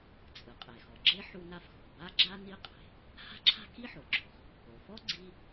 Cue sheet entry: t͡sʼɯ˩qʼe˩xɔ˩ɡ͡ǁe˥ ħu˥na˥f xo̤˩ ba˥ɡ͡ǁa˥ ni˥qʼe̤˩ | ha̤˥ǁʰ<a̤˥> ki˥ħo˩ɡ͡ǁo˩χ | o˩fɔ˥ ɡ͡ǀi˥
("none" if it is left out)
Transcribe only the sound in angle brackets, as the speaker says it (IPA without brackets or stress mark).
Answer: a̤˥